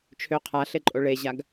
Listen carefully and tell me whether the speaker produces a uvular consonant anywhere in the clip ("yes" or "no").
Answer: yes